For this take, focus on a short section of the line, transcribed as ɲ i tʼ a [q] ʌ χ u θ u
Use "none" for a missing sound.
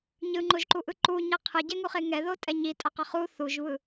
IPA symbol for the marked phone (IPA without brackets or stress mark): q